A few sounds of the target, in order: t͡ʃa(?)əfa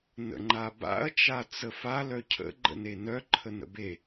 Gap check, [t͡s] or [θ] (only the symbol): t͡s